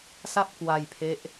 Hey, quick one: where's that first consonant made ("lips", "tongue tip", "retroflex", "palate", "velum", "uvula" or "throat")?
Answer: tongue tip